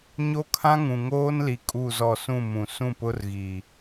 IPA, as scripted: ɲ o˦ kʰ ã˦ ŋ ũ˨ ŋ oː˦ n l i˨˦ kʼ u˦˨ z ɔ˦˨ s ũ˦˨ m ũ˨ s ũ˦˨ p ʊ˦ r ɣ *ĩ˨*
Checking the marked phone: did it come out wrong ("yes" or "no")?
yes